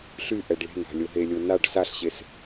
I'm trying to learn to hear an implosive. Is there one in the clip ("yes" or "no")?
no